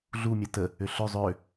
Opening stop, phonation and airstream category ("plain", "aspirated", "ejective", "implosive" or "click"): plain